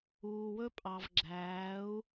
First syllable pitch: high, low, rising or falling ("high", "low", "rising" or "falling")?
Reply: low